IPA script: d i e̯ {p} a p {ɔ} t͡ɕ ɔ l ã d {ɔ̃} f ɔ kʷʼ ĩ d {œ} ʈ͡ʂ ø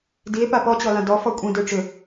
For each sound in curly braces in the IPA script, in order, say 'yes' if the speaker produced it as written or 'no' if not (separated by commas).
yes, yes, no, no